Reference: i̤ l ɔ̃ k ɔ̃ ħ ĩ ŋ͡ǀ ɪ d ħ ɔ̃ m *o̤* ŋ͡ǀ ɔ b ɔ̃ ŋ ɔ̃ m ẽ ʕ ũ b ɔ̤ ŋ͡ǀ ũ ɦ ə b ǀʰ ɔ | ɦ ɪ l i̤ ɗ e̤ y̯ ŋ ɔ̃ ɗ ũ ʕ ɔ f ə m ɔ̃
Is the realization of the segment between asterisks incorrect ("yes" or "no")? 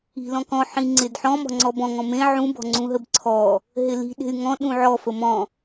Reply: yes